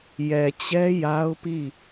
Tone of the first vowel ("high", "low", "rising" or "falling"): low